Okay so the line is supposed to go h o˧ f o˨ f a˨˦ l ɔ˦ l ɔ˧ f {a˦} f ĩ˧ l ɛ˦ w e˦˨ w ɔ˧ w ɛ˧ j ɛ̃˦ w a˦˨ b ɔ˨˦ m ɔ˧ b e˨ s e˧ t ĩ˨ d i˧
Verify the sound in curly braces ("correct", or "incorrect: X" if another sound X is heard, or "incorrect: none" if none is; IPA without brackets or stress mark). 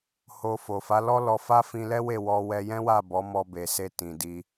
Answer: correct